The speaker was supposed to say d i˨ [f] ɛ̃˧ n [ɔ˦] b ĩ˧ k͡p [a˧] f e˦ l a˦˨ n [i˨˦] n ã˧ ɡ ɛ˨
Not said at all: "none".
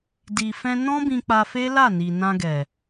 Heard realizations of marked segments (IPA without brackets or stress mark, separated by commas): f, ɔ̃˦, a˧, i˨